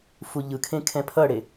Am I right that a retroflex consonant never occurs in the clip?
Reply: no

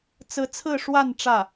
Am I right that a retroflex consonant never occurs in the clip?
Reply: no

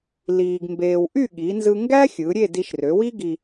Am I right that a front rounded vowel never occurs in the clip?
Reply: no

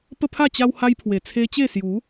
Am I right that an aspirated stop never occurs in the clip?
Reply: no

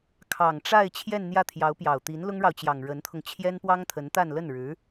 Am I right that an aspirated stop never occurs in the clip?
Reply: no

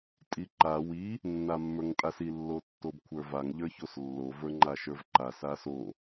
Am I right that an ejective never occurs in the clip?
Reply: no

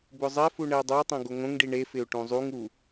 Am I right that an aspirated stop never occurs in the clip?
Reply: yes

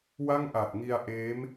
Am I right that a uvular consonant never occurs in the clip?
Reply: yes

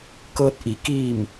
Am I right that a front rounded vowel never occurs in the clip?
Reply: yes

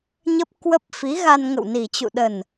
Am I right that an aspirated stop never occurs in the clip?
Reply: yes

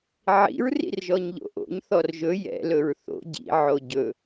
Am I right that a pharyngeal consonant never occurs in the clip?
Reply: no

